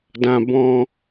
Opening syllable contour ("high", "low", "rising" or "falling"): high